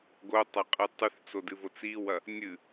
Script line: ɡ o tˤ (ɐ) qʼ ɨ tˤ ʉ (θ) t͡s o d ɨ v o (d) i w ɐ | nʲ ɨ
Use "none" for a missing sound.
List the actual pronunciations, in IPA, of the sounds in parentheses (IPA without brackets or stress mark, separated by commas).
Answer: ɐ, θ, t͡s